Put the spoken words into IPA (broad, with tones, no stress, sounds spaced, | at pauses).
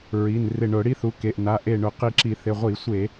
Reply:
ɹ i˩˧˩ n r ɪ˧˩ ɳ ʊ˧˩˧ ɽ i˦˥ θ u˩˧˩ k e˩˧˩ ʔ n a˩˧˩ ʔ e˧˩ ɳ ʊ˧˩˧ q i˧˩ ǁ i˧˩˧ θ ɪ˩˧˩ ʁʷ i˧˩˧ sʷ e˧˩˧